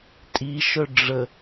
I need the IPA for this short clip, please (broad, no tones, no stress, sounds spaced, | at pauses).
tʼ i ʃ œ ɖ͡ʐ ə